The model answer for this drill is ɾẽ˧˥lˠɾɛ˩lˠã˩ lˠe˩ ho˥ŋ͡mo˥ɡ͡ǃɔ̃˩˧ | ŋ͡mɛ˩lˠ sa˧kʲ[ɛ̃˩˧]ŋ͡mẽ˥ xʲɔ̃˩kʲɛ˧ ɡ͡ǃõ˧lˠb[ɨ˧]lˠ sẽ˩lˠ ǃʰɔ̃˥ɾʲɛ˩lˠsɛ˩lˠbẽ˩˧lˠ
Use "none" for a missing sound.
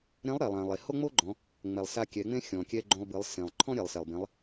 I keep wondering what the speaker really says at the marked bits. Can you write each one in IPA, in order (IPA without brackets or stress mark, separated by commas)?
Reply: ɛ˩˧, ɨ˩˧